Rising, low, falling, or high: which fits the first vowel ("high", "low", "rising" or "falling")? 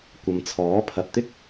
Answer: low